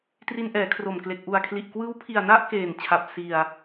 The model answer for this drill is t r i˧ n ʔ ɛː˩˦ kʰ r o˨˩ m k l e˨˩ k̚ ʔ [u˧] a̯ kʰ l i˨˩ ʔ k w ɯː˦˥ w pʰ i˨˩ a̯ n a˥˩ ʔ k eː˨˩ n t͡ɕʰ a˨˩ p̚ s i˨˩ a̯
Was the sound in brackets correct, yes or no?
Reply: no